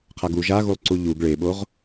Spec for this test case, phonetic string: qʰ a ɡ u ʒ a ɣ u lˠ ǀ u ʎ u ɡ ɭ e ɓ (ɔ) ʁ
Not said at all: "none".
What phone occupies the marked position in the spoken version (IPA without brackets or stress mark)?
o